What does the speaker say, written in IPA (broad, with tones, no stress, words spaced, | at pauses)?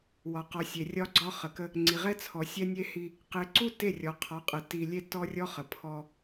wɒ˨qɔ˨ sʲe˨rʲɒ˦ɡ͡ǀɒ˦ χə˨kə˦ | ŋ͡ǀi˨ʁɛ˦t͡sʰɔ˨ sʲɛ˦nʲe˦hi˦ | qe˨ǀu˦ te˦˨rʲɔ˨qʰɒ˨˦qʼə˨ ti˨lʲe˦ tɔ˦rʲɔ˦χə˨ pʰɔ˦